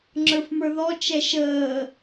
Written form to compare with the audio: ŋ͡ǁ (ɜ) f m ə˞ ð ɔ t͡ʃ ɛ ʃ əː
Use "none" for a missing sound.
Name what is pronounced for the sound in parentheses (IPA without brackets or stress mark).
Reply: ə˞